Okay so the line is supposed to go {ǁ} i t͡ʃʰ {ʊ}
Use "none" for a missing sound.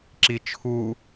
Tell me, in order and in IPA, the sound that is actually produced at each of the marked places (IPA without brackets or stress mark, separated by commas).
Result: ǁ, u